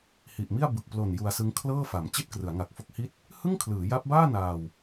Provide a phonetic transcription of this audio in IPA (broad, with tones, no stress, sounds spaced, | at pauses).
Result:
h i˨˩ ʔ m i˥˩ a̯ b ɯ˨˩ k̚ p l o˨˩ n j u˧ a̯ s ɯ˦˥ ŋ kʰ l ɤː˥˩ f a˩˦ m t͡ɕ i˥˩ t̚ k r ɯ˩˦ a̯ ŋ a˨˩ k̚ f o˦˥ k̚ h i˦˥ t̚ | h ɯ˥˩ ŋ kʰ l ɯː˩˦ j a˦˥ p̚ b aː˥˩ n aː˧ w